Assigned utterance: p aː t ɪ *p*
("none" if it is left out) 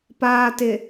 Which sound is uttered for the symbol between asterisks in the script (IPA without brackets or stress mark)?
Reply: none